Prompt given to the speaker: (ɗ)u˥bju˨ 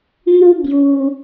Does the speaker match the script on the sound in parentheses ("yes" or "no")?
no